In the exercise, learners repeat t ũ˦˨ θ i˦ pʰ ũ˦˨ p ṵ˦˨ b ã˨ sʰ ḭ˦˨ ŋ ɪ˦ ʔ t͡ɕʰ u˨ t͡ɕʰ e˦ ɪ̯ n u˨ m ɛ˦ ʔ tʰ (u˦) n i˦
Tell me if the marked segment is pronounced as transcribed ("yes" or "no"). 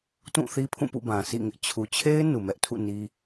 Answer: no